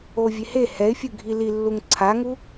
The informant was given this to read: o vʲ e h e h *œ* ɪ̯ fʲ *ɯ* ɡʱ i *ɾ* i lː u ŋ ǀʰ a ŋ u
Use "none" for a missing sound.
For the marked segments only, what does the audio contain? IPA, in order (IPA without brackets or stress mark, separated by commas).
ɛ, ɯ, l